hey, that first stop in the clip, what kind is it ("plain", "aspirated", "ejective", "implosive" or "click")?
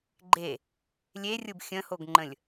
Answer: click